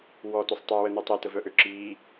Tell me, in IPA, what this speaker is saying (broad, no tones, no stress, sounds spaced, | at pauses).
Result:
w ɔ t o sˤ tˤ e w ə n u tˤ e t ə v œ ʔ ø ǁ i